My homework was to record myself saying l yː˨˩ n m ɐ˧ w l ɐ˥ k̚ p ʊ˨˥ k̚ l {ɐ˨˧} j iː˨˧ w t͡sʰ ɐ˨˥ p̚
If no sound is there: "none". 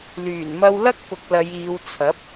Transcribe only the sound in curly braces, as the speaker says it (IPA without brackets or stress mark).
ɐ˨˧